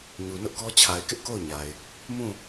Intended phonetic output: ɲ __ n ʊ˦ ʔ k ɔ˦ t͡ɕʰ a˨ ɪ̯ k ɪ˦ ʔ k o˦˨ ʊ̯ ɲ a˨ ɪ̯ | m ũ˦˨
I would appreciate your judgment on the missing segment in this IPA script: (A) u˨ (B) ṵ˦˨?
A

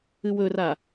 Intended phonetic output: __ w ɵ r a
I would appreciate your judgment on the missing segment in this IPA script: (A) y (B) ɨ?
B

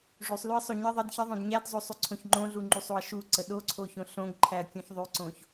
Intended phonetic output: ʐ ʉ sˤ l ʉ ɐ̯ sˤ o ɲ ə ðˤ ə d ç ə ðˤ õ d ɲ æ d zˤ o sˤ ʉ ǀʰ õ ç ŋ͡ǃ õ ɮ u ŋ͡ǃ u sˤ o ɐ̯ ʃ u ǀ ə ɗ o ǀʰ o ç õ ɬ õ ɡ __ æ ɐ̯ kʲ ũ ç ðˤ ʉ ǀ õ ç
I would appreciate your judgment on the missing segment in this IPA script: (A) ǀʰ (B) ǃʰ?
B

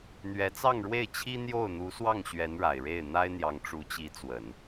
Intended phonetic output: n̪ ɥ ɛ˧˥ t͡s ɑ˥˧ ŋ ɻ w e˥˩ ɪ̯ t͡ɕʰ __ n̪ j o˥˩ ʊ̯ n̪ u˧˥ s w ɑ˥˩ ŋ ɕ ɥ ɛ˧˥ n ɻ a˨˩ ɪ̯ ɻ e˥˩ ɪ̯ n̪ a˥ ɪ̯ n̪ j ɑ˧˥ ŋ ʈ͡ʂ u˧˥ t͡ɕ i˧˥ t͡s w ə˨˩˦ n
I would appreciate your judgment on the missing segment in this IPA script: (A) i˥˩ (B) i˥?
B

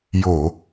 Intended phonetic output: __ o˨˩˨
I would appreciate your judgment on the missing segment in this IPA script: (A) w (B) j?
B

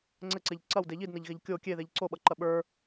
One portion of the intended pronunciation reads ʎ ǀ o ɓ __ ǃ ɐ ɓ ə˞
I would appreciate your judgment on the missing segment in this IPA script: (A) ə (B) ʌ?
B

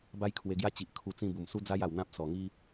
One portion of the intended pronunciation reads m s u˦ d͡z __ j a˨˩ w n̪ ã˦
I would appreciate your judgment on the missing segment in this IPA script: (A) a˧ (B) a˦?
B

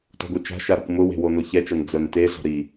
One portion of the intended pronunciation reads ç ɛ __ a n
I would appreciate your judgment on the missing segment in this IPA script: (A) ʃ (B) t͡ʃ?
B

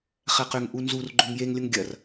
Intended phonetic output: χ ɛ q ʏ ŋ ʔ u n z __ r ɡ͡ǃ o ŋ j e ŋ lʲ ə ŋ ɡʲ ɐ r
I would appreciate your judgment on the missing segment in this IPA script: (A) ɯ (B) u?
B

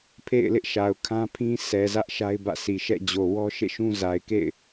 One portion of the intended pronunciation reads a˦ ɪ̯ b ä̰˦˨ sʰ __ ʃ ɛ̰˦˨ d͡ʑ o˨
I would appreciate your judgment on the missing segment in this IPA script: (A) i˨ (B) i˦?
A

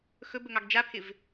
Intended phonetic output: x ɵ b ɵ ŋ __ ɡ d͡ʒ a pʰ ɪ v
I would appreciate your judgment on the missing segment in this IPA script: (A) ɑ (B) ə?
A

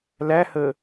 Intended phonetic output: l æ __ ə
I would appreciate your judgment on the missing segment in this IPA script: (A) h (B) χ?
A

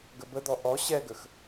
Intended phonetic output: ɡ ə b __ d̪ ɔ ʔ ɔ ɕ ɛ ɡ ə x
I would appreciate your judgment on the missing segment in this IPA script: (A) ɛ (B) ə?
B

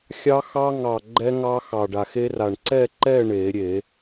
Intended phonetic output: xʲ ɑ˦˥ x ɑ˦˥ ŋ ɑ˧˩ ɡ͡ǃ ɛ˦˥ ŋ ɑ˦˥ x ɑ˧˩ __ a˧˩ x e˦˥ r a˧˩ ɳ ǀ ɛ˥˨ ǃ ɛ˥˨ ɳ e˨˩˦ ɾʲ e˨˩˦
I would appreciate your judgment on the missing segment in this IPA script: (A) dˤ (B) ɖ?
B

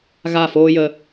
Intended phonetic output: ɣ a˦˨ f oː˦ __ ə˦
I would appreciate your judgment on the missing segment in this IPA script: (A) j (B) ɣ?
A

